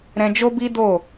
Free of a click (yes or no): yes